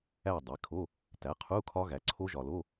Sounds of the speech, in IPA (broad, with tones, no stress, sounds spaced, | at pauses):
æ˥˨ dˤ e˩˥ kʰ o˧˥˧ | t æ˩˥ qʰ u˧˥˧ kʰ ɒ˦˥ ɣ æ˩˥ ǀʰ o˦˥ ʒ ɒ˨ l o˧˥˧